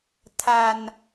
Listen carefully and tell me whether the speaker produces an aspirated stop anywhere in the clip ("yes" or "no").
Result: yes